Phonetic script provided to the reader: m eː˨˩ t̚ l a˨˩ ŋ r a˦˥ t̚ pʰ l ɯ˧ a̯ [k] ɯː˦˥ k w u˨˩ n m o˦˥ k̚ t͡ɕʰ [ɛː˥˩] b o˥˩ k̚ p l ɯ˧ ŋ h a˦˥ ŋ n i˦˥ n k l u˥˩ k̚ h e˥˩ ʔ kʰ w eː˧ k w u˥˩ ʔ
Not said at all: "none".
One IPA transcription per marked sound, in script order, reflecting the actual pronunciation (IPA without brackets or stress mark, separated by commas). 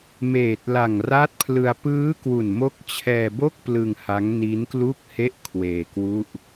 p, ɛː˧